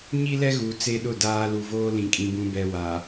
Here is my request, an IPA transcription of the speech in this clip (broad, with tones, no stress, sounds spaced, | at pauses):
ɲ i˦ l ɛ˦ ɣ u˨ t͡s e˦ ɗ ʊ˦˨ d aː˦ l u˨ v oː˦ l ĩ˨ kʼ ĩ˨ b ũ˨ b ɛ˨ w a˨